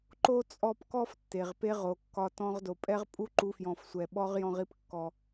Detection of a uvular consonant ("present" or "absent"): present